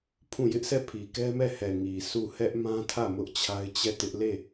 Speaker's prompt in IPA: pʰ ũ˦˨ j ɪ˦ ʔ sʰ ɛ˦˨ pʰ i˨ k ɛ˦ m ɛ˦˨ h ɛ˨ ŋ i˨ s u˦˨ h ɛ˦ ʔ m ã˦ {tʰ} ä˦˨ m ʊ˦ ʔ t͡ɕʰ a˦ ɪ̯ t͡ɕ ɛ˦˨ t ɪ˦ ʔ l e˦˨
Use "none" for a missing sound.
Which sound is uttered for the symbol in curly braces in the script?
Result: tʰ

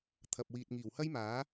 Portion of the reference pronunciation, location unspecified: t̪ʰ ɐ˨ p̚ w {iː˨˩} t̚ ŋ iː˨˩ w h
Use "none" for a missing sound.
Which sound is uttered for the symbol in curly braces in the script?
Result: iː˨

